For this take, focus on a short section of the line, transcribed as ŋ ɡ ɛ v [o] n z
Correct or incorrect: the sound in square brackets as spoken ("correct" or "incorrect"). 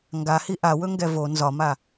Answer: correct